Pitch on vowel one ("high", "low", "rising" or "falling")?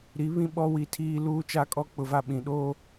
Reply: rising